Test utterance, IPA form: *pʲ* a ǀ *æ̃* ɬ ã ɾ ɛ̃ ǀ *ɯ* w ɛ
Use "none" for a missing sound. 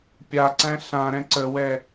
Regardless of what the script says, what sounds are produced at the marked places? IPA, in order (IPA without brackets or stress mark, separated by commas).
pʲ, æ̃, ə